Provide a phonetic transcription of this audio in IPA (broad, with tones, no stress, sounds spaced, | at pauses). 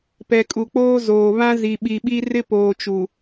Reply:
p ɛ˨ kʼ u˨ k͡p oː˦ z oː˨ β ã˦ z i˨ ɓ i˨ ɓ i˦ r ɪ˦ p oː˨ t͡ʃ u˨